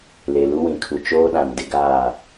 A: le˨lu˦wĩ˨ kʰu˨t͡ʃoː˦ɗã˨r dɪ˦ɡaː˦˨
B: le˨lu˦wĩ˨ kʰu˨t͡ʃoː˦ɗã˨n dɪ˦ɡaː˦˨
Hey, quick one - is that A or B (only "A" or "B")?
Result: B